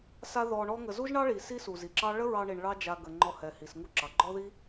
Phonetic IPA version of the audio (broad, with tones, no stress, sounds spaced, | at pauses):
s a˦ ð ɔ˧ ɳ ɔ˦ ŋ ə˧ z u˦ ʒ ɳ ɑ˦ ɭ i˨ s i˦ s u˨ z i˨ ǁ ɑ˦ ɭ ə˦ ɹ ɑ˧ ɳ i˨ ɳ ɭ ɑ˦ d͡ʒ a˧ ɡ ə˨ ŋ͡ǃ ɔ˧ h ɛ˨ h i˨ s ŋ u˦ ǁ ɑ˨ ɡ͡ǃ ɔ˦ ð i˦